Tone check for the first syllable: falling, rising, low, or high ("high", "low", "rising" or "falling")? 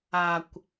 low